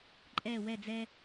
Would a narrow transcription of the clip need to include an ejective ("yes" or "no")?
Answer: yes